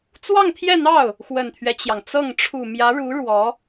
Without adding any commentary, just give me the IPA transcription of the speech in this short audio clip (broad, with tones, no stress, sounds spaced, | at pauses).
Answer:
t͡s w ɑ˥˧ ŋ t̪ʰ j ɛ˥˧ n̪ ɑ˥˩ ʊ̯ | x w ə˨˩ n t̪ʰ ɥ ɛ˦ t͡ɕ j ɑ˩ ŋ t͡s ɤ˥˩ ŋ ʈ͡ʂʰ u˨˩ m j ä˧˥ ɻ u˧˥ ɻ w ɔ˧˥